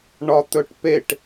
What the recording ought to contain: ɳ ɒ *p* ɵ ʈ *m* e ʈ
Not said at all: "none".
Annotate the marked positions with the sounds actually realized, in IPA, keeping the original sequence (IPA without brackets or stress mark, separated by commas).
t̪, p